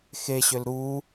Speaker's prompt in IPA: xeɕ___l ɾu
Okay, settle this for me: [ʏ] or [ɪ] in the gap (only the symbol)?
ʏ